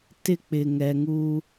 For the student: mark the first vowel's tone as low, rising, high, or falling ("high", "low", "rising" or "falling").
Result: high